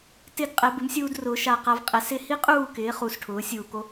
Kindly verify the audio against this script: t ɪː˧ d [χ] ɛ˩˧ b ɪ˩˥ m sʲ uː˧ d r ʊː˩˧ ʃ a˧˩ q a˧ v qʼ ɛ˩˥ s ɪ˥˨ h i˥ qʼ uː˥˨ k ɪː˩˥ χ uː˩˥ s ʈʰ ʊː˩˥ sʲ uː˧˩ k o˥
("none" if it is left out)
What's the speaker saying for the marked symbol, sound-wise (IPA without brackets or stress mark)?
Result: qʼ